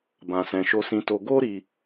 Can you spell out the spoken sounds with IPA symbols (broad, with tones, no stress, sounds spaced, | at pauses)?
b ã˧ s ɛ̃˧ ʃ o˧ s ĩ˧ t o˧ ɡ o˦ ɾ i˧